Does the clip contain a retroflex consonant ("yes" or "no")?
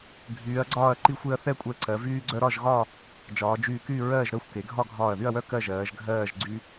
no